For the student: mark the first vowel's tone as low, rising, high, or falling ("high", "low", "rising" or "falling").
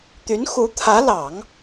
rising